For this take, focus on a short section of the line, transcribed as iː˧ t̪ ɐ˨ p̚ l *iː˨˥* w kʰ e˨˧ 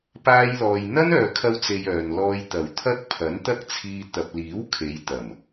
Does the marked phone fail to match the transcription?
no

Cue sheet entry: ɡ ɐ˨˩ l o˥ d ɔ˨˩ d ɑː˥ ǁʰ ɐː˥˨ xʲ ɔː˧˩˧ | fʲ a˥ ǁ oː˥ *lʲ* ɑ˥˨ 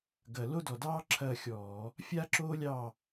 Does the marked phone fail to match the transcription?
no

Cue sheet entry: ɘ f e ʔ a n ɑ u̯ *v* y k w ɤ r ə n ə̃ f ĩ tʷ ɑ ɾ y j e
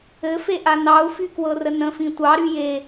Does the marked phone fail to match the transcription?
yes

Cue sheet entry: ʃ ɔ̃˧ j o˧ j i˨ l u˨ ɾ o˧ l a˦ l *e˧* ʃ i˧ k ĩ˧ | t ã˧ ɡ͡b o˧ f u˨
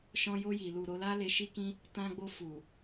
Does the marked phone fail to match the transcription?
no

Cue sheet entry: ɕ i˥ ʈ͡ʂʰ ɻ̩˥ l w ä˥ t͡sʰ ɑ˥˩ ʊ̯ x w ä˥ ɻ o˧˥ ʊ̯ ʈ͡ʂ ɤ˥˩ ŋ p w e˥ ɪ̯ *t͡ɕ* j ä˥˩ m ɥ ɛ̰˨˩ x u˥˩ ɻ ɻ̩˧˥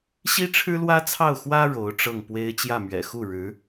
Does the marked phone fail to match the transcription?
no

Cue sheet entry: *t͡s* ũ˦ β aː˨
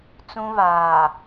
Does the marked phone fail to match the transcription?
no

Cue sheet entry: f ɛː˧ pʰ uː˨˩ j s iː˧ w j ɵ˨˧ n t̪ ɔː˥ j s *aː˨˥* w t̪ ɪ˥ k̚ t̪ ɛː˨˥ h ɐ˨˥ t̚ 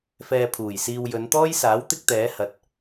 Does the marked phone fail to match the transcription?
no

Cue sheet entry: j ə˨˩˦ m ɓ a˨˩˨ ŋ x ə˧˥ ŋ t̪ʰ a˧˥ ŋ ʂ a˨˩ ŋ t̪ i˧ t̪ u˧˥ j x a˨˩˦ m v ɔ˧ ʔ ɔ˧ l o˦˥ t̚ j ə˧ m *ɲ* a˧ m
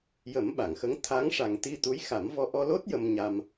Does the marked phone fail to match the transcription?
no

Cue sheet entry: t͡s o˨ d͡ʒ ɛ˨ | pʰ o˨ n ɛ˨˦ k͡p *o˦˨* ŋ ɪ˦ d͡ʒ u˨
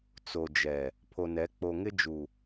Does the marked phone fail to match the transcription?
yes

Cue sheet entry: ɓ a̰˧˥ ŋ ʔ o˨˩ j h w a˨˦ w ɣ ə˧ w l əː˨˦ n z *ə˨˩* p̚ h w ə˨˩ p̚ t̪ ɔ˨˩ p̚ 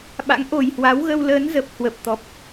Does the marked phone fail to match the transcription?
no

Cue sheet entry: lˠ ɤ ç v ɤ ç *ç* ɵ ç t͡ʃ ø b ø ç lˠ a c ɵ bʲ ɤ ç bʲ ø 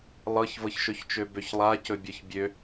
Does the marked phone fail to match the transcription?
yes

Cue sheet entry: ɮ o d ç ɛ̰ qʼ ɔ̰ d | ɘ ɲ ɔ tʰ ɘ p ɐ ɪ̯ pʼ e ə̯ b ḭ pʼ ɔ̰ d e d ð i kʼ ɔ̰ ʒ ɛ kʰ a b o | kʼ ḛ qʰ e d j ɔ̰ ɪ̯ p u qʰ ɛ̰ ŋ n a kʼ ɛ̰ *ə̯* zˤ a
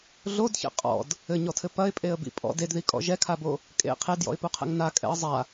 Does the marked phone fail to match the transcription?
no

